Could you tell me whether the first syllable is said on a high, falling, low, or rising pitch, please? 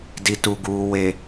low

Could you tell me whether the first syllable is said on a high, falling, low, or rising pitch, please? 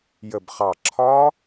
low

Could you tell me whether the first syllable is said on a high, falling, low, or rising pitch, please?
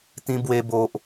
high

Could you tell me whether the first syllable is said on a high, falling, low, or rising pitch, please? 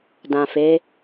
low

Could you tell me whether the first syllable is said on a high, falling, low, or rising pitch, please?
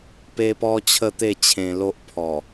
high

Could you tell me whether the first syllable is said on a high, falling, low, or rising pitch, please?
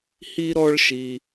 high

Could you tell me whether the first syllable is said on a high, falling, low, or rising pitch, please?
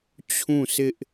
falling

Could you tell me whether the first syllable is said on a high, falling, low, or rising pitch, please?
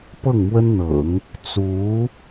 falling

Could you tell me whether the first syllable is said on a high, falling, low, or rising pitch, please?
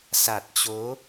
low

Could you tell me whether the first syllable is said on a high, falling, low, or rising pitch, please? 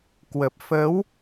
low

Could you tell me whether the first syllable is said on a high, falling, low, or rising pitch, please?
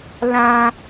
high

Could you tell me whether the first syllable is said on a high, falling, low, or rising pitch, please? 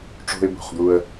high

